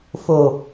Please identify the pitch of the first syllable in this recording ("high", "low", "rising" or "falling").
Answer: low